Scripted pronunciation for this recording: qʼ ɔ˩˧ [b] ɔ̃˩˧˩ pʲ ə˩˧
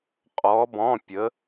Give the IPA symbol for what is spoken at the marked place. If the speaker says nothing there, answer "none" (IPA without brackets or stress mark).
b